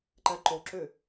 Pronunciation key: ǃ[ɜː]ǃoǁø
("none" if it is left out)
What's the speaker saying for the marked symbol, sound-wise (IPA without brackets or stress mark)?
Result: ɜ